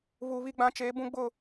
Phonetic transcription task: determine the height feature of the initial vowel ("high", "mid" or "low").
high